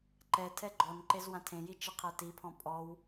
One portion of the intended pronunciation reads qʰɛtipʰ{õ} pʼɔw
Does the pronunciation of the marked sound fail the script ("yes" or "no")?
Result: yes